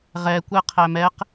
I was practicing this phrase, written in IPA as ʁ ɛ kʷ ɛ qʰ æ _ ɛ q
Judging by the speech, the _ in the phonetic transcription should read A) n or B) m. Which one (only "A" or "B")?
B